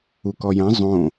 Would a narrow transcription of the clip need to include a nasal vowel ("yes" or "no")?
yes